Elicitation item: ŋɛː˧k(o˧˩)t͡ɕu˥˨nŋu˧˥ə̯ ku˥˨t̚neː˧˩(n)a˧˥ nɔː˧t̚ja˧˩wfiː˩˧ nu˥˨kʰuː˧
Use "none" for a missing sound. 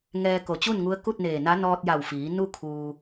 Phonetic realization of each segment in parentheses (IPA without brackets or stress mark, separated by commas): o˧˩, n